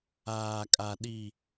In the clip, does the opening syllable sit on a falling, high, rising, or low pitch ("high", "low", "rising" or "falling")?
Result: low